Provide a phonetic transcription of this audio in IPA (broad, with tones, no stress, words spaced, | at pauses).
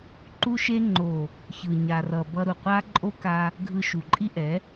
ǃu˧ʃe˧ŋ͡ǃo˨ | çɯ˨ ɲa˨rʌ˨ bʌ˧ɾu˨qʷa˦ ǃʼo˦ka˧ | ɡʱɯ˧ʃu˨ǃʼi˦ʔɛ˨˦